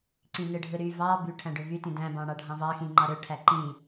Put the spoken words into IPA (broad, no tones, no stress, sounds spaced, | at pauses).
ǀ ĩ n ɯ ɖʱ ɯ ɾ y v ɑ b y ʈʰ æ̃ ɖ ø v y t ĩ d æ̃ b ɑ̃ ɽ ɑ ɖʱ ɑ̃ v ɑ x ĩ ŋ͡ǃ ɑ ɾ ø ʈʰ æ ǃ ĩ